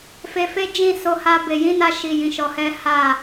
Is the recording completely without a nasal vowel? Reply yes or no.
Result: no